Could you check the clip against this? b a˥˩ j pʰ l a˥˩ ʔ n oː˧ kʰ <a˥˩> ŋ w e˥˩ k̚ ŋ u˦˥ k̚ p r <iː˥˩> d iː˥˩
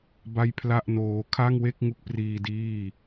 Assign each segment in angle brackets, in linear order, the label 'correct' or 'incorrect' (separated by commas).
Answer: correct, incorrect